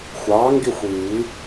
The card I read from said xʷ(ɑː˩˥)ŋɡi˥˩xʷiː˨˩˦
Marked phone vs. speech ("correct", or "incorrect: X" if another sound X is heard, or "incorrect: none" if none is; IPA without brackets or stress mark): correct